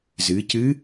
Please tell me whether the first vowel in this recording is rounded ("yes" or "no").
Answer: no